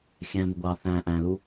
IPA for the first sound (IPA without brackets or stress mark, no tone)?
xʲ